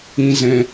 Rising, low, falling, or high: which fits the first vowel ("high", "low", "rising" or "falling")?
low